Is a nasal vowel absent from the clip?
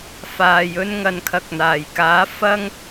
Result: yes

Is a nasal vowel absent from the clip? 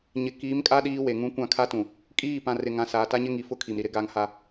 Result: no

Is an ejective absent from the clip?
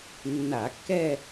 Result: yes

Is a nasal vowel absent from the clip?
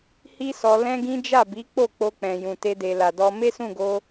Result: no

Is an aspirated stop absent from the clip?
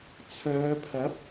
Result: no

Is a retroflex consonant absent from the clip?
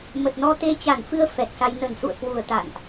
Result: yes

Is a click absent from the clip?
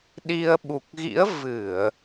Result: yes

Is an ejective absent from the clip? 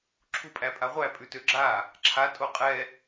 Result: no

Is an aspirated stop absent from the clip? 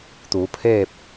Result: no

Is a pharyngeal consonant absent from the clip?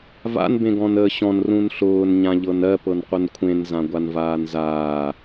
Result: yes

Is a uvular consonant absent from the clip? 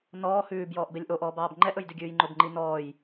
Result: yes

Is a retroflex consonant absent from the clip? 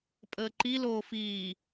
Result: yes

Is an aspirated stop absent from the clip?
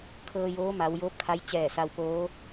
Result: no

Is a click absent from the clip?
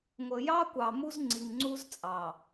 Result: no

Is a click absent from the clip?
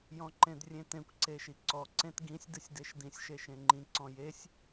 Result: no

